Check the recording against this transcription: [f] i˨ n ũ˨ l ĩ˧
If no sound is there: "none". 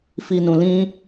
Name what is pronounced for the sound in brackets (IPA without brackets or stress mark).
f